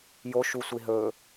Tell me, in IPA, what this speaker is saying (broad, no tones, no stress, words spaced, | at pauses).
joʃusʷi ɦɵ